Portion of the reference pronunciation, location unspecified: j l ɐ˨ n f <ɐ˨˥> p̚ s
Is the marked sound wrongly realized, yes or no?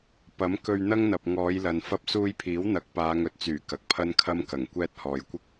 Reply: yes